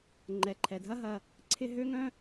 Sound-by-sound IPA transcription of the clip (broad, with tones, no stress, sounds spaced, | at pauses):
ŋ͡ǃ ɛ˩ ǃʰ ɛ˩ dʱ ɐ˦ ɦ ɐ˨ | ǀʰ ɪ˦ ɦ ø˥ ŋ œ̃˥